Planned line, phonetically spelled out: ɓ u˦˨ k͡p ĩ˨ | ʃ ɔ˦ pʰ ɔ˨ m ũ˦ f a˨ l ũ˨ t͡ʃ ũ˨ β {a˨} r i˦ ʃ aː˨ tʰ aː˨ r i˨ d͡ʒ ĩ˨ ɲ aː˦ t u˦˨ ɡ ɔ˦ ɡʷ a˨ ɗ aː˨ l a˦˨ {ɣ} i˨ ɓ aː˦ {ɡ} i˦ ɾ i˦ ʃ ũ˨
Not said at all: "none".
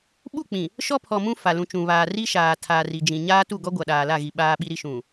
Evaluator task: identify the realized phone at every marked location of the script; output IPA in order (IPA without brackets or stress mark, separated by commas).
aː˨, ɣ, ɓ